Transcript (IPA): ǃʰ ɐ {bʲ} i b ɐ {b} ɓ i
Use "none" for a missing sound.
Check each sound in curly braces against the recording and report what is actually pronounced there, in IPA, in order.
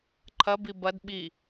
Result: b, d

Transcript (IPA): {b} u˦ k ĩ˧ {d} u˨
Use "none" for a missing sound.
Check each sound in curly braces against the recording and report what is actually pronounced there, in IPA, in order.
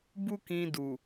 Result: b, d

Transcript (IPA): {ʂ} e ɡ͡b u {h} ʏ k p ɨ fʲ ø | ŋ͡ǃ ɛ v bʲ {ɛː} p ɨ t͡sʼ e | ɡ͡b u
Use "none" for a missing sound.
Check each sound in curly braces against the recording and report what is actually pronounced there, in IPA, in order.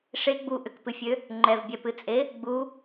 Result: ʂ, ʔ, ɛ

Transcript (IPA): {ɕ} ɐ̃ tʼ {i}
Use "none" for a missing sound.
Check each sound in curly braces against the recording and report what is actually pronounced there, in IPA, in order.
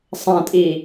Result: sˤ, i

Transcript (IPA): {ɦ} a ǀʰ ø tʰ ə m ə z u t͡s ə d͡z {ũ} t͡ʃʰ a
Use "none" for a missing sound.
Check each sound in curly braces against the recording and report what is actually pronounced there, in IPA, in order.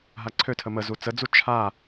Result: ɦ, u

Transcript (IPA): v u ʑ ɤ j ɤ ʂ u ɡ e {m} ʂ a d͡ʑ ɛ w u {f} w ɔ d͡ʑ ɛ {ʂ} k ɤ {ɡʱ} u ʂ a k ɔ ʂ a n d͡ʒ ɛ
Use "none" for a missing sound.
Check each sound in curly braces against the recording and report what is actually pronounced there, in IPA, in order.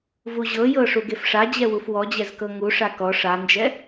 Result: f, f, z, ŋ

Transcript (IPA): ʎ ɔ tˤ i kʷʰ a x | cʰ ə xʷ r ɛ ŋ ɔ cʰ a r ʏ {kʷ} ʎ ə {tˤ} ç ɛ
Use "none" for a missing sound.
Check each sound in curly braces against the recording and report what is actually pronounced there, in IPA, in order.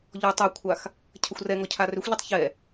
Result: xʷ, tˤ

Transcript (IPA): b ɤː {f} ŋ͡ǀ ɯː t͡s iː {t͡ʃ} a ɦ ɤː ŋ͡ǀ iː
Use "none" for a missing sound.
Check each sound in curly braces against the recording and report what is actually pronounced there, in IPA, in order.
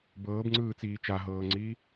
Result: b, t͡ʃ

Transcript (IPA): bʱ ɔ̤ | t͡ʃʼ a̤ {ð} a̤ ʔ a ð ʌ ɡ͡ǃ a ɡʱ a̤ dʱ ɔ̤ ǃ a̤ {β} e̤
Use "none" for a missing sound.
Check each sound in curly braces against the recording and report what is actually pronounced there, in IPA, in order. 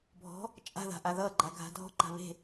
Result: ð, β

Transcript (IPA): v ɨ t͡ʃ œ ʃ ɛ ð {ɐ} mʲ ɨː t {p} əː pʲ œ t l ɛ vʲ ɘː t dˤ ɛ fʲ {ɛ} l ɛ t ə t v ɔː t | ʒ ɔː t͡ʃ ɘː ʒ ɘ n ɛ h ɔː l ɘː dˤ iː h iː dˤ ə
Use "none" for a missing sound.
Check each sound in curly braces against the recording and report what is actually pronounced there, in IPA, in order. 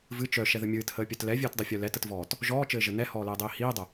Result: ə, h, œ

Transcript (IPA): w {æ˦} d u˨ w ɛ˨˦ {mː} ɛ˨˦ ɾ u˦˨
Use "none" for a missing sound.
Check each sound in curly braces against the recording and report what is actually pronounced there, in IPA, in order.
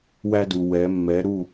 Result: æ˦, mː

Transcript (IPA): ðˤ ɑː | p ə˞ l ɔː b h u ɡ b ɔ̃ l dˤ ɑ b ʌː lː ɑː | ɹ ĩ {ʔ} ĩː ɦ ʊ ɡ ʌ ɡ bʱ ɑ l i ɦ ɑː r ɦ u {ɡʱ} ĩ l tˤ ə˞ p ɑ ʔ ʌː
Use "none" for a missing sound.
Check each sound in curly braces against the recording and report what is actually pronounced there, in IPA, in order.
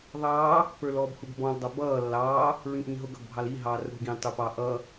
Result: ʔ, ɡ

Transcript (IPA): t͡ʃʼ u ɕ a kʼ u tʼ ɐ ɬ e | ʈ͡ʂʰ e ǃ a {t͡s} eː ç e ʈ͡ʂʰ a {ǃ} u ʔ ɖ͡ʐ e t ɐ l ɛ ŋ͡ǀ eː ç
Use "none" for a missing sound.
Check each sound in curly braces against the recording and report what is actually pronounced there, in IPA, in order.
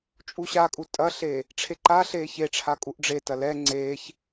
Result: ɬ, kʼ

